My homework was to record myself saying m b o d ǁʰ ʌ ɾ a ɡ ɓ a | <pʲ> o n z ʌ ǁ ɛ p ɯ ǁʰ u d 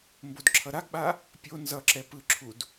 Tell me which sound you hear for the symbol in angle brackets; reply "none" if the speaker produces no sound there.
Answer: pʲ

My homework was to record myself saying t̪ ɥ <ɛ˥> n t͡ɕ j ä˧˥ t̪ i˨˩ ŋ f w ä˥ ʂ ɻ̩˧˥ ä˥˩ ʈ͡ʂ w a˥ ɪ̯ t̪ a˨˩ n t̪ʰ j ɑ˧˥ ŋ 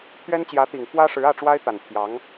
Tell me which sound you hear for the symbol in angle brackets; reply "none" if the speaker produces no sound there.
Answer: ɛ˥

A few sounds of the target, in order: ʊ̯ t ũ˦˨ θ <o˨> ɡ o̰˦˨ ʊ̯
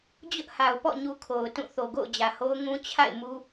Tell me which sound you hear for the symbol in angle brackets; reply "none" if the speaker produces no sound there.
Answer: o˨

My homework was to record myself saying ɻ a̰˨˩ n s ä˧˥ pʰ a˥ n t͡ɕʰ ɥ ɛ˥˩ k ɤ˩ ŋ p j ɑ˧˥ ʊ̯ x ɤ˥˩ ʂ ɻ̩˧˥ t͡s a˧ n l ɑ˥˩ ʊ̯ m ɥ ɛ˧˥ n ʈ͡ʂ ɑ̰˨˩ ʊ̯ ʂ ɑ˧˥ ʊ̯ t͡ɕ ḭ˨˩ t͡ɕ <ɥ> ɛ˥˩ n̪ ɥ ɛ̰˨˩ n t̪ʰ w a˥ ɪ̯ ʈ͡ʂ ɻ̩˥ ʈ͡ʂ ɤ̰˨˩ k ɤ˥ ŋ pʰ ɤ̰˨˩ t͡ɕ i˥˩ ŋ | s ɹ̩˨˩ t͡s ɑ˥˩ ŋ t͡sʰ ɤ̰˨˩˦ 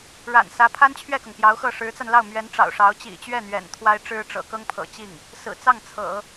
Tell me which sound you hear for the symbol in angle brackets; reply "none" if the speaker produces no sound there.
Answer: ɥ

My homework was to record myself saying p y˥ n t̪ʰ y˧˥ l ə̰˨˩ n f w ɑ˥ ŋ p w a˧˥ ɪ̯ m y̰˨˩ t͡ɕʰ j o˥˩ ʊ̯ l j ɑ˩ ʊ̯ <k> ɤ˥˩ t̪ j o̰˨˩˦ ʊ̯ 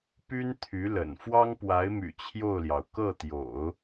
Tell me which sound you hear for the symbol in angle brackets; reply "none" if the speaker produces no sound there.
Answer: k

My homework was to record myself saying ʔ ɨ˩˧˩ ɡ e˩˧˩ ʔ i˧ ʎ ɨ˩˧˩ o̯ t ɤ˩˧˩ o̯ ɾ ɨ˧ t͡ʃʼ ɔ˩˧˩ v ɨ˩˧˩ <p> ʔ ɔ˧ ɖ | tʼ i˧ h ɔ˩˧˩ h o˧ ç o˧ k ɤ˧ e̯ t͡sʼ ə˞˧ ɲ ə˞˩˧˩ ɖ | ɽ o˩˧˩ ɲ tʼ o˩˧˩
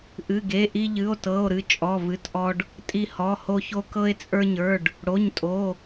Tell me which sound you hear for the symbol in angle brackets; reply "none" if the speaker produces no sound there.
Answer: t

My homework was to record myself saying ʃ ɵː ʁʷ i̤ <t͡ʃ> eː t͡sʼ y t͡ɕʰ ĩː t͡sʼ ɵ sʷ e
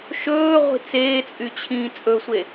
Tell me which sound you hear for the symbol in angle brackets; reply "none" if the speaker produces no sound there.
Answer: t͡s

